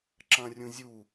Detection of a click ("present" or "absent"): present